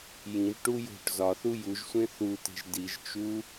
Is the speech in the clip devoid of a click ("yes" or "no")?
yes